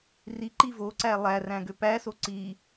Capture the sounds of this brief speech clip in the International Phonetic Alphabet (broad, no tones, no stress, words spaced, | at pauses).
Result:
riǃi voǀæ lˠæræ̃ɡø pæso ǀi